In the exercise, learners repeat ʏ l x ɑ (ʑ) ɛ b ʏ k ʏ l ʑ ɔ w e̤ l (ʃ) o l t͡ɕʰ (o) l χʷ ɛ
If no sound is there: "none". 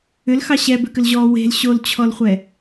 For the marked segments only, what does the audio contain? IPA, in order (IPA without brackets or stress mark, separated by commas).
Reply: ɕ, ɕ, ɔ